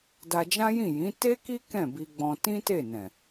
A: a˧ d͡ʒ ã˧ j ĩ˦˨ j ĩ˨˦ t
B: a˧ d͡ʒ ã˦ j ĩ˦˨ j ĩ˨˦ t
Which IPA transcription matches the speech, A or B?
B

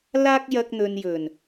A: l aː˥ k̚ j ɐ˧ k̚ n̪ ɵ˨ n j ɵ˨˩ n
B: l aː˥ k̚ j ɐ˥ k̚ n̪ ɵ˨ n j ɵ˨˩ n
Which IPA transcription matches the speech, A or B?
A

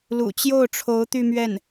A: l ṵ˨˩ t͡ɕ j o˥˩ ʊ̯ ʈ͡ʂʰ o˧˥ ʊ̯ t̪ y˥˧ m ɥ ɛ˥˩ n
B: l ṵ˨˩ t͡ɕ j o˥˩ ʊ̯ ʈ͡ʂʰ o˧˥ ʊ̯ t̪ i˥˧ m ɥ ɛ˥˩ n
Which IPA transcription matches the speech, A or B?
A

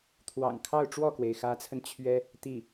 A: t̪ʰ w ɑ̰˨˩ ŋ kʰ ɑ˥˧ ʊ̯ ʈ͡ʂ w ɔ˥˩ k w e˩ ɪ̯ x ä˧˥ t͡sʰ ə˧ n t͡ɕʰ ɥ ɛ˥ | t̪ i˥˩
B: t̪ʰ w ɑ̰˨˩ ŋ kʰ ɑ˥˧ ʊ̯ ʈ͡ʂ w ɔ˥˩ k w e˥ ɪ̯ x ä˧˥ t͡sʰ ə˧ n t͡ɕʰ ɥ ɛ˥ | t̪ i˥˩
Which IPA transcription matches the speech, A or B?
A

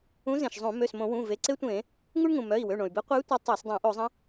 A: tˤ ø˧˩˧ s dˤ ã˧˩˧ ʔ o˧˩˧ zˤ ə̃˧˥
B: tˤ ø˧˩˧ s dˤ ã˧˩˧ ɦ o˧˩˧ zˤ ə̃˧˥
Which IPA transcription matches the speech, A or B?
A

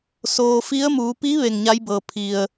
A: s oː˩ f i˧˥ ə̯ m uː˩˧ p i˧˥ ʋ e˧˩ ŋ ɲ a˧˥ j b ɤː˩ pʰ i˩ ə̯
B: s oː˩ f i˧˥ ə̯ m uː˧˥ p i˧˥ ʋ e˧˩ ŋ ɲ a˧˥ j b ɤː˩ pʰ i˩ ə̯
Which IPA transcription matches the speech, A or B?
A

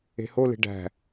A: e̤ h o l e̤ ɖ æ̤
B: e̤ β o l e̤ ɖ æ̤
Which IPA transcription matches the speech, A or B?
A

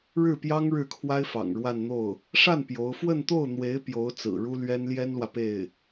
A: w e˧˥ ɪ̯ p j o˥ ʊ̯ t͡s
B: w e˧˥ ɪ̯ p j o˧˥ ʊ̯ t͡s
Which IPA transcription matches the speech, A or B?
B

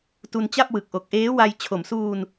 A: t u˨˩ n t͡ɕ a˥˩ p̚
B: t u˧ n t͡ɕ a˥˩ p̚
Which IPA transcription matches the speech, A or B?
B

